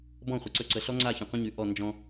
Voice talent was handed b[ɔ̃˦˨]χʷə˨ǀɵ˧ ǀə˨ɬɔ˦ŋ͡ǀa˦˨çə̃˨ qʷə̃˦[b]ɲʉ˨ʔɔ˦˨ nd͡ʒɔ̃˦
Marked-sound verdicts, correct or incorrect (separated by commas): correct, incorrect